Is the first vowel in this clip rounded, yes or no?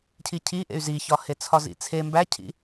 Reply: no